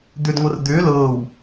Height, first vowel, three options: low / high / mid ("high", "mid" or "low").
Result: high